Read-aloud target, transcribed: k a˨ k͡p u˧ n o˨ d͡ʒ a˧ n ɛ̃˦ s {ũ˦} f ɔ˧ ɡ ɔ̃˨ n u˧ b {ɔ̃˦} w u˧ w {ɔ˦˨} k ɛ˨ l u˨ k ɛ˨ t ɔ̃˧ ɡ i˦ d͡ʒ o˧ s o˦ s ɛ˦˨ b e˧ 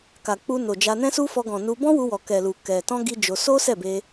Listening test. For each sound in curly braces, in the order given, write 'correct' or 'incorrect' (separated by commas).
incorrect, correct, incorrect